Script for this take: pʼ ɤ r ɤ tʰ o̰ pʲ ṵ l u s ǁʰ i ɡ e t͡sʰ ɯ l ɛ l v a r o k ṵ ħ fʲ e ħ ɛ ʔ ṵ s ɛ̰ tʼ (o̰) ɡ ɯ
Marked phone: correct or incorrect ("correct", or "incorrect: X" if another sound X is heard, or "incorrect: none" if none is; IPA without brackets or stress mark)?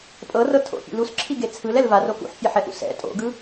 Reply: correct